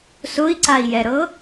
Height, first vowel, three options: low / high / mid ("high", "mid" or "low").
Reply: high